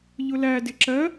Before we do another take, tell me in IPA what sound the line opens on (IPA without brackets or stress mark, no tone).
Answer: ʎ